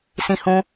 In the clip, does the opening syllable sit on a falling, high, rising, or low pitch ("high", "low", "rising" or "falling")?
high